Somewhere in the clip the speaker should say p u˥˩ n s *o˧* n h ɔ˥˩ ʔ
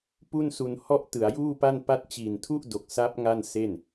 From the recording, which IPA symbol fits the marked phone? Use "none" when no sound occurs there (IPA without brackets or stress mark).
u˧